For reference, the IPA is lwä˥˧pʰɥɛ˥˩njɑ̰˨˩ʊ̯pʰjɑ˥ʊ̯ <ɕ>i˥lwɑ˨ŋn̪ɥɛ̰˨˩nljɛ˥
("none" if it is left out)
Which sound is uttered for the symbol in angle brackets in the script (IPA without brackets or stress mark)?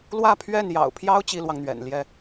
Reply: t͡ɕ